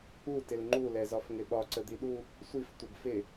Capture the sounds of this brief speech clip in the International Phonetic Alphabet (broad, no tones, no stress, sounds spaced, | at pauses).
u t ɪ l ŋ͡ǃ u l ɛ z ɒ f ŋ ɪ ɓ ɒ ǀ ə d̪ i ɗ u | sʷ i f tʷ ə b f ɪ